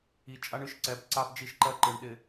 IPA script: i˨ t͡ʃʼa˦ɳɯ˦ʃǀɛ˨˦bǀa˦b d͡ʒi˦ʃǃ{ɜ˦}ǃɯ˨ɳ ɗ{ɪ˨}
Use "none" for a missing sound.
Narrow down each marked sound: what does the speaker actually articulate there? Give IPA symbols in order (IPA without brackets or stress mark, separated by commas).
ɜ˦, ɪ˨